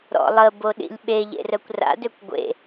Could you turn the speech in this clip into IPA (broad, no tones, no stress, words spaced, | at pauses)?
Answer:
ɾɔ̰lˠə boɗḭlʲɓeʎḛ rœkʷra̰døkʷ ɡʷḛ